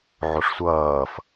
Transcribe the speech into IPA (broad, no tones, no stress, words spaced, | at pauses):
ʕoʂsʷʌːf